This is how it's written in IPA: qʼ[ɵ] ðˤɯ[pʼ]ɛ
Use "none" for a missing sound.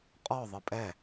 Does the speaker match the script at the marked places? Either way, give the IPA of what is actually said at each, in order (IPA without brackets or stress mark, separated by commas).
ɔ, pʼ